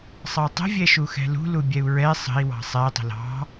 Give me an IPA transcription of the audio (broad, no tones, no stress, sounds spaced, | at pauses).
sˤ ɑ tˤ ə̤ vʲ ɛ ʃ u x ɛ̤ l ṳ l u bʲ ɛ u̯ ɹ ɛ sˤ ə̤ i̯ w ɑ̤ sˤ ɛ tˤ ə̤ l ɑ̤